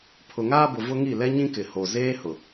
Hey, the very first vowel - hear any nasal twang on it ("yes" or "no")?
no